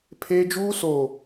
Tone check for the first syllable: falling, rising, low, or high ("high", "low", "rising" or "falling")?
high